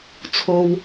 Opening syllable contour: high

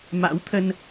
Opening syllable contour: rising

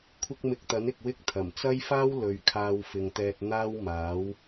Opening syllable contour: high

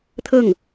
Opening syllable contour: falling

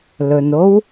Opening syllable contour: low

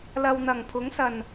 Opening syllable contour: low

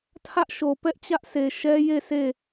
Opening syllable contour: high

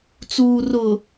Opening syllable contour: low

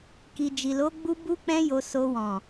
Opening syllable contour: low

